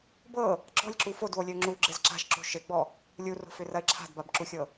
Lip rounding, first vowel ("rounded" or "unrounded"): unrounded